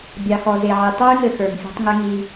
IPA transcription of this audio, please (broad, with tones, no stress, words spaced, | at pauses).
bʲɑ˨xɔ˨ze˨ʕi˨ tˤœ˦y̯ŋɘ˨ xə˞˨ŋfʲɛ̤˦tˤŋɘ˦ ŋi˨